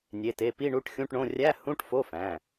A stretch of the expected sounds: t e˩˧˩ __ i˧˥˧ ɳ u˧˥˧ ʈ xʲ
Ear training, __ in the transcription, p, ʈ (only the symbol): p